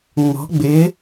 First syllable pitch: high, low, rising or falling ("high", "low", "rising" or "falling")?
rising